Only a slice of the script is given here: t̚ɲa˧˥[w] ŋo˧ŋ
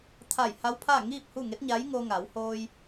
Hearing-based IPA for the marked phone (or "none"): j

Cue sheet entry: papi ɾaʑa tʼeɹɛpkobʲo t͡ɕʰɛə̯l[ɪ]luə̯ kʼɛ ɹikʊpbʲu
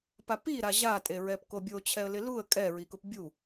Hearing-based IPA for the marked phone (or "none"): ɪ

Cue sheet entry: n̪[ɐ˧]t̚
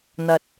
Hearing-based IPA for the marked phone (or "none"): ɐ˧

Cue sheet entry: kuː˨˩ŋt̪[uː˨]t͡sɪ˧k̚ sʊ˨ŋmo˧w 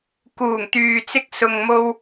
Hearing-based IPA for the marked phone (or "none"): yː˨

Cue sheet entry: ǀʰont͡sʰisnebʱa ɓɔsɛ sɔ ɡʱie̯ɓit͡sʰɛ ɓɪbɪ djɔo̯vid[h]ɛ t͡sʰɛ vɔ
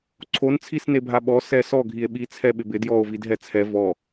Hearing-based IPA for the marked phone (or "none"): ɦ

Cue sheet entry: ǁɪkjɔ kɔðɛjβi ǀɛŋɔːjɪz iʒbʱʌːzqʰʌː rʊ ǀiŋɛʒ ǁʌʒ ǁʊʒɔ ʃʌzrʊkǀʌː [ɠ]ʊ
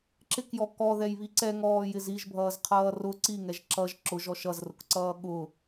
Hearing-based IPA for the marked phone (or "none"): ɠ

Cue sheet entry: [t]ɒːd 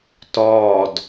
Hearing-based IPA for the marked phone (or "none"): t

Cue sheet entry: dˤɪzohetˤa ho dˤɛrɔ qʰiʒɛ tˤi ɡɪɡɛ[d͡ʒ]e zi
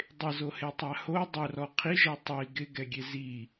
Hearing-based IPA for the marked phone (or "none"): ɡʲ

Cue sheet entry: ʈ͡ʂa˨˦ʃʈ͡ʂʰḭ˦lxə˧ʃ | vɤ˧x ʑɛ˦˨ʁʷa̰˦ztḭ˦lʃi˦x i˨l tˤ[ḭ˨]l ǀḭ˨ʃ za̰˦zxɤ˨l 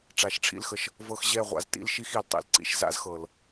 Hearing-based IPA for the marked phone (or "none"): ḭ˨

